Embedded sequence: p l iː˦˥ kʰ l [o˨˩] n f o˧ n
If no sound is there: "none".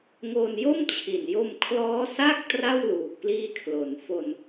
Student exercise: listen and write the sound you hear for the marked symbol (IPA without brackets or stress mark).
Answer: o˩˦